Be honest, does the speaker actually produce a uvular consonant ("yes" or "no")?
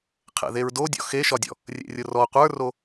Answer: yes